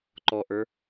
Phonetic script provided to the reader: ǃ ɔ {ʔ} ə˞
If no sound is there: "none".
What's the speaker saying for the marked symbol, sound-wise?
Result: ʔ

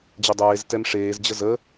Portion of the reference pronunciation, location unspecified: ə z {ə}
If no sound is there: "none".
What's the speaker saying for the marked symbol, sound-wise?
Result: ə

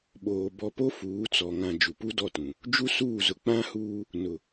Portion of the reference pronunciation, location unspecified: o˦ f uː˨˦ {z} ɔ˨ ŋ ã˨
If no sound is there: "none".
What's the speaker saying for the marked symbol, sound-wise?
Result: t͡s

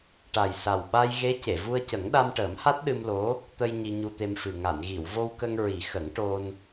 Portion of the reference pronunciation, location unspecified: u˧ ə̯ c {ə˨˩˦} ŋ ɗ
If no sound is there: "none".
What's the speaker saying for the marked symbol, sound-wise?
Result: ə˨˩˦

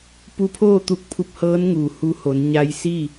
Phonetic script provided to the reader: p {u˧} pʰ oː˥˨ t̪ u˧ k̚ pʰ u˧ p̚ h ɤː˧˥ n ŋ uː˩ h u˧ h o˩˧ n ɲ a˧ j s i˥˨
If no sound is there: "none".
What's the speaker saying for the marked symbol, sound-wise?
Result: u˧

